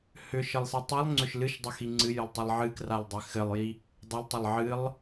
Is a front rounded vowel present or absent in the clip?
present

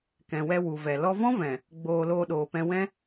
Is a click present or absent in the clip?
absent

